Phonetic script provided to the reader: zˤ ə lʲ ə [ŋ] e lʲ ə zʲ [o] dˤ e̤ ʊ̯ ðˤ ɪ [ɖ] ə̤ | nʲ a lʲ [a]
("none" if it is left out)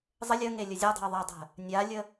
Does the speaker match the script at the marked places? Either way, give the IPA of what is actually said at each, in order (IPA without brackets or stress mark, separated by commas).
ŋ, ɔ, dˤ, ə